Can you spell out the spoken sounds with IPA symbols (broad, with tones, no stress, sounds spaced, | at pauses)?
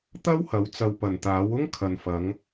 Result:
t̪ ɐ˥ w h ɐ˨˥ w t͡s ɐ˨ w p ɐ˨˩ n t̪ aː˨˥ w ʊ˥ ŋ kʰ ɐ˨ n f ɐ˨˧ ŋ